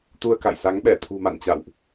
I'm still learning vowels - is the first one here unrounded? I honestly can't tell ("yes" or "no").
no